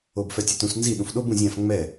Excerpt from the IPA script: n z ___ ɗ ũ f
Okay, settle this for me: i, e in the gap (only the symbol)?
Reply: i